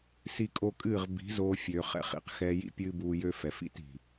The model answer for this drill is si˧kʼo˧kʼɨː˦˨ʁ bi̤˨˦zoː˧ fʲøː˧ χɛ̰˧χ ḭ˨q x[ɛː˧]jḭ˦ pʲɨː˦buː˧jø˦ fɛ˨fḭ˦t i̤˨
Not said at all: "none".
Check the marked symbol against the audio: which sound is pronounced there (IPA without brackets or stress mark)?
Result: ɛː˧